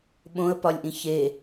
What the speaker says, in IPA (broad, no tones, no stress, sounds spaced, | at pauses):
ɓ õ ə̯ p ɒ lʲ ʔ ĩ ç e